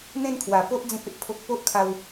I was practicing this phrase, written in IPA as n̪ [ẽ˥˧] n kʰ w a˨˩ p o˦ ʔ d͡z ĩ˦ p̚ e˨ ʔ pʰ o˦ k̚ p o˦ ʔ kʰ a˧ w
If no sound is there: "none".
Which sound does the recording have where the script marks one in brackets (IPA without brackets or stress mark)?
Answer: ẽ˥˧